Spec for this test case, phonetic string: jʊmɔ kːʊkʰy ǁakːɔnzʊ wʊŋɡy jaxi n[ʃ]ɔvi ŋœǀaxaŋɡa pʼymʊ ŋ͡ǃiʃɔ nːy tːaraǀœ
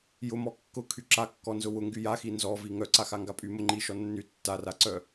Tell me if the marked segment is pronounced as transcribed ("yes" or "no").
no